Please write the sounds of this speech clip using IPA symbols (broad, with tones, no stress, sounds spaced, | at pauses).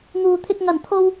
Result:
ŋ uː˨ t̪ʰ ɪ˧ k̚ ŋ ɐ˨˩ n t̪ʰ o˧ w